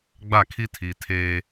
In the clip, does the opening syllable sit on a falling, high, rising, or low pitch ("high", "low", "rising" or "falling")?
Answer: falling